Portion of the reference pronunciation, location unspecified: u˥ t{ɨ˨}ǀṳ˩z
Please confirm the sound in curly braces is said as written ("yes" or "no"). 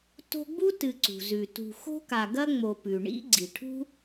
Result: yes